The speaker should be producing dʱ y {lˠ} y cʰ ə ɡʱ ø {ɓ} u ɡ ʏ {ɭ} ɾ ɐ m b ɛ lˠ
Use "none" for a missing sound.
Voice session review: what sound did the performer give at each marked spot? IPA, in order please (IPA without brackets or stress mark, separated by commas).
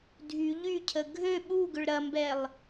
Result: ʎ, ɓ, ɭ